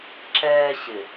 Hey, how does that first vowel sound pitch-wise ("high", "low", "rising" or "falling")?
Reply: high